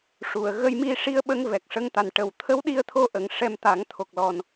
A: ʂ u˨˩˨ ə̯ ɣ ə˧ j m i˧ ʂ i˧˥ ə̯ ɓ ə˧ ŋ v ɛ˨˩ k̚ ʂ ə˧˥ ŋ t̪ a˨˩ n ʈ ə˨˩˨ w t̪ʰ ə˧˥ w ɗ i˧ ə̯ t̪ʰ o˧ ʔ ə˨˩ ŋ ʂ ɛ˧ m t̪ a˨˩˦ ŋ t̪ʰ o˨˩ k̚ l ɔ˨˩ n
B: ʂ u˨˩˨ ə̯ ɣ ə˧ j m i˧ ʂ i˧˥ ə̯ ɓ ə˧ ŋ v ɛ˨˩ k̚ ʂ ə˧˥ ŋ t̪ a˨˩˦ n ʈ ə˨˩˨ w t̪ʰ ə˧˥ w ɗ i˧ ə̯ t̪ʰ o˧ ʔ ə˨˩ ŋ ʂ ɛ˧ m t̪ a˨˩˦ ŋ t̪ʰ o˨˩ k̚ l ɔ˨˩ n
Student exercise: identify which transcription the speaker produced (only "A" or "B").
A